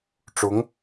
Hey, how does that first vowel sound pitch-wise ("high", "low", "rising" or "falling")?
rising